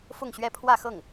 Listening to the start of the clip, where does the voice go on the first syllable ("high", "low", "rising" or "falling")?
falling